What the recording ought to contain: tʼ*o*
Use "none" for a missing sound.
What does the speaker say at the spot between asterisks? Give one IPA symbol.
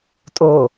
o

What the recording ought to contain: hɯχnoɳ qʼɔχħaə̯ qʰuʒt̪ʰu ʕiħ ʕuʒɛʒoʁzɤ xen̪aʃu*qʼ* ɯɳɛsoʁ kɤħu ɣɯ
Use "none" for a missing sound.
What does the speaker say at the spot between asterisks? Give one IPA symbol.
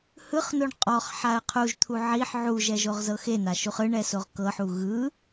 χ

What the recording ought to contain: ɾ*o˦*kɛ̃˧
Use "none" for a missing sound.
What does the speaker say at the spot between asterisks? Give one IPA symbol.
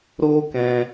o˦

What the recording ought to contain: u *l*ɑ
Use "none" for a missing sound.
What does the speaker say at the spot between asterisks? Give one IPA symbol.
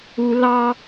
l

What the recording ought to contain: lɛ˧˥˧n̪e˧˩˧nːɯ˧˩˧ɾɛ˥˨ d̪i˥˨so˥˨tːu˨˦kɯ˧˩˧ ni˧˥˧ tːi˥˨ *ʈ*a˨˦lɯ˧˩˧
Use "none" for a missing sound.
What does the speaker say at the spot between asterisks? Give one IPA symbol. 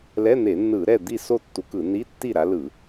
ɾ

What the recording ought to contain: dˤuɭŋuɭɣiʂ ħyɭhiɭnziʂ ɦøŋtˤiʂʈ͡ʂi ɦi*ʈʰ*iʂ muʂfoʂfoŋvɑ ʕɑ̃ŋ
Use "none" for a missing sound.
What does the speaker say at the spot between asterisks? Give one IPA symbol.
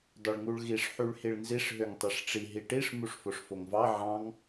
ʈ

